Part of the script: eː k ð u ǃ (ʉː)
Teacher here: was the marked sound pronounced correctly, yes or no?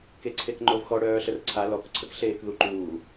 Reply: no